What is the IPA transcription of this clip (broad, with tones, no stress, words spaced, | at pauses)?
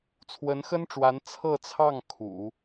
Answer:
t͡sʰwə˧˥nxə˥nʈ͡ʂwa˧˥n t͡sʰɤ˥˧t͡sʰɑ˥˩ŋ kʰṵ˨˩˦